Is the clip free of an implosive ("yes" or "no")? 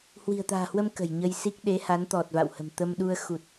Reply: no